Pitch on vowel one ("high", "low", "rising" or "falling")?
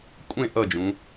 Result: falling